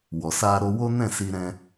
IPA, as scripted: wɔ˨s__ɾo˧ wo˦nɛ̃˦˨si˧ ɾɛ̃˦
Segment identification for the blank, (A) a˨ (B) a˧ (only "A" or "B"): B